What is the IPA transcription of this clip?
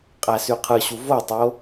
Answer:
qʼ æ s y qʰ ɯ ɕ u v o tˤ o

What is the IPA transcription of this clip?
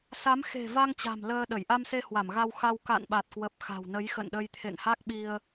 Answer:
s a˨˦ m x e̤˨˩ v a˧ ŋ t͡ɕ a̤˨˩ m l əː˧ ɗ ə˧˩ j ʔ a˧ m s e˧ h w a˧˩ m ɣ a˧ w x a˧ w k a̰˧˨ n ɓ a˨˩ t̚ k w ə˨˩ p̚ x a̤˨˩ w n ə˨˦ j x ə̰˧˨ n ɗ ə˧ j t̪ʰ ḛ˧˨ ŋ h a˦˥ k̚ ɓ i˧ ə̯

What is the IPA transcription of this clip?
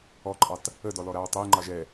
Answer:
ɔ ǃʼ ɑ t | ə d ɔ l ɔ ɾ a ɹ tˤ ɛ j ŋ͡ǃ ɑ ʒ ɛ

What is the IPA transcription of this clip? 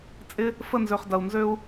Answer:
t͡sʼ ɪ˦ | f ə˦˨ n z ø˨ χ d ɐ˨ u̯ n z ø˦ u̯

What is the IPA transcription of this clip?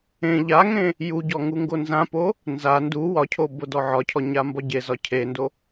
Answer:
ẽ ʎ a ŋ ẽ | j u ɟ ɔ ŋ u ŋ ɡ o n z ã p o | n z a n d u w ɒ cʰ o b o d ɔ ʕ ɒ cʰ ɔ ɲ a m b ɒ ɟ e z ɒ cʰ e n d o

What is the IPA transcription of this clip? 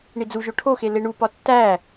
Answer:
ɳ i d͡z u ʒ o ʈʰ o x e l e ɳ u p ɒ tː æ

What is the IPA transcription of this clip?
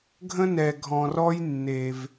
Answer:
ɡʱ ə̃˦ n ɛ˨ ɡʱ ɔ̃˨ r ɔ˦ j nː e˩ v

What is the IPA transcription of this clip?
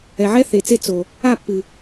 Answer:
ɛ˨ ʕ ɛ˦ θ e˨ t͡s e˦˨ t͡s o˨ | a˦˨ pː ɨ˨

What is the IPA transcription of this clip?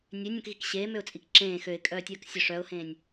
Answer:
nʲ ø nʲ œ̃ k ɣ i k ɕ eː m ø ʊ̯ t͡sʼ i k ǁ ẽː x ø ɪ̯ kʼ œː tʲ œː k sʲ œ ʂ œ ʊ̯ h ẽː nʲ

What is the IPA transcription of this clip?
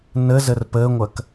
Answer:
n ə z ə r p ə ŋʷ ɐ k

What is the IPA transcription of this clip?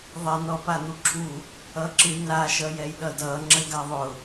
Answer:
ðˤ ɛ n ɔ p a n̪ u ǁʰ u | ʌ ǁ ɨ n a ʃ ʌ j ɛ j ɗ ʌ d ʌ ŋ͡ǁ ə ɡ a ðˤ ʊ

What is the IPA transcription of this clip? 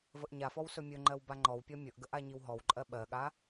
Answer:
v ə ʔ ɲ a f ɔ w s ɵ mʲ ɵ ŋ͡ǃ ɜ w b a ŋ͡ǃ ɔ w pʲ ɔ mʲ ɵ ʔ ɡ ə ʔ a ɲ i w ɦ ɔ w ǃʼ ɜ ɓ ɜ ɠ a

